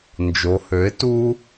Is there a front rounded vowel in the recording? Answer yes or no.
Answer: yes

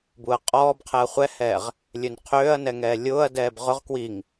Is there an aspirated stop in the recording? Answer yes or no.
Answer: yes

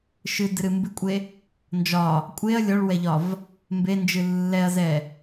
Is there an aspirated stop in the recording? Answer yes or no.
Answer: no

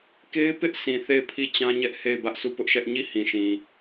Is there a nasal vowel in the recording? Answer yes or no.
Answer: yes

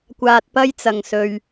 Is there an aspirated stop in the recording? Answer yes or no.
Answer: no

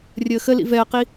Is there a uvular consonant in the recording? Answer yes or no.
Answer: yes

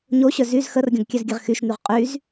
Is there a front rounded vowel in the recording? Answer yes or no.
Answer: yes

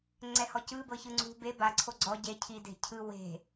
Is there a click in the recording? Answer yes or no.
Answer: yes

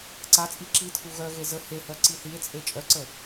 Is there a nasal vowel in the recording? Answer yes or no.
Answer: no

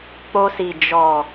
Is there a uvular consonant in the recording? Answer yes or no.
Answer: no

